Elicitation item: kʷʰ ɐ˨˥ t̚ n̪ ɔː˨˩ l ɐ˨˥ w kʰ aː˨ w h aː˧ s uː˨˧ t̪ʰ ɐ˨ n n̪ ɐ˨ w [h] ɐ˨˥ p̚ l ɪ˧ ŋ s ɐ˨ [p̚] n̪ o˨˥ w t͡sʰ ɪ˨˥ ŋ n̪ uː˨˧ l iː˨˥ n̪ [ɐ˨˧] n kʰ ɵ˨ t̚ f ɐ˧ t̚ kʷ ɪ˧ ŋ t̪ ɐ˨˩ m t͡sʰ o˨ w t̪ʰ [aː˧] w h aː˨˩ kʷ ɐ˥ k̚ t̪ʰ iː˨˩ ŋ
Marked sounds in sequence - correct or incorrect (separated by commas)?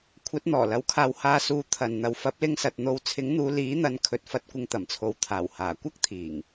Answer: incorrect, incorrect, correct, incorrect